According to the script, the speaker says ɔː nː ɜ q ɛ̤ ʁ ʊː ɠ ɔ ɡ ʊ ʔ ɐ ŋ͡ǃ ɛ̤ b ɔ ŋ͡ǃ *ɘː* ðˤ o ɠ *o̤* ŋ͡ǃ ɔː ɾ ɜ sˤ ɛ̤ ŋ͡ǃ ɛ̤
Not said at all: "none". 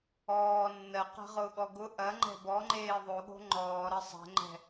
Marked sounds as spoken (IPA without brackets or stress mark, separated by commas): eː, o̤